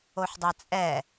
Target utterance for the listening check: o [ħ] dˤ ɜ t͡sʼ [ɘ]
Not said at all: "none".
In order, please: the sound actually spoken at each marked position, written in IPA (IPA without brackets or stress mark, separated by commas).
ħ, ɛ